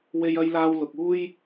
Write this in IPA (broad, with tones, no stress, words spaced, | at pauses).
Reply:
we˧jɐ˧jlaː˧w lʊ˨k̚uː˥j